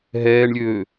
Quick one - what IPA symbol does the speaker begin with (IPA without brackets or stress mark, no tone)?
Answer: ɦ